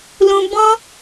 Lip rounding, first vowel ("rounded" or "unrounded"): rounded